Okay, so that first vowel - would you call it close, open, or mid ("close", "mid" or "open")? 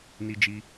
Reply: close